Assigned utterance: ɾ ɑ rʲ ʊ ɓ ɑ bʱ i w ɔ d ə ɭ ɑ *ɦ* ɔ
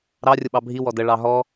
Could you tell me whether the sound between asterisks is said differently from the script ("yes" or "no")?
no